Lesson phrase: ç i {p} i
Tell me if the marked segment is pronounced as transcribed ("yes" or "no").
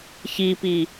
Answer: yes